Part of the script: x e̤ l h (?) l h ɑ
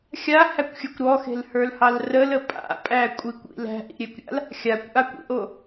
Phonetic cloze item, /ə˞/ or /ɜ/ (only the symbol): ə˞